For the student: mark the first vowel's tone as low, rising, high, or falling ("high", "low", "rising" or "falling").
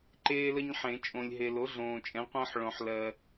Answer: high